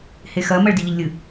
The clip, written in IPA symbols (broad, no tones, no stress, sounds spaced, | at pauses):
h e x ɜ m ɜ ɭ d i ʎ ɪ ʎ lʲ ɨ